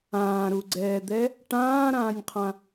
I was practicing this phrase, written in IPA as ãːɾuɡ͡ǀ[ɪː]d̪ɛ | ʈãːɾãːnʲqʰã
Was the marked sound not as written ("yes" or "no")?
yes